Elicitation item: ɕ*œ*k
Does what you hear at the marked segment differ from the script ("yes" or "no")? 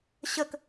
yes